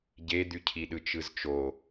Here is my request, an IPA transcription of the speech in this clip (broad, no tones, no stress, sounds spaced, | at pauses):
ɟ e d̪ y cʰ i ɗ ɯ t͡ʃ ɯ z t͡ʃ o